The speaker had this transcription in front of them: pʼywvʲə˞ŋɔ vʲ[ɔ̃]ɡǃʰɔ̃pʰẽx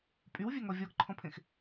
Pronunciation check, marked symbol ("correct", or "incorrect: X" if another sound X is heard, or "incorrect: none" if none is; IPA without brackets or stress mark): incorrect: ɔ